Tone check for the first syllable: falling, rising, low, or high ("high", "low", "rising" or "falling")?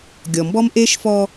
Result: low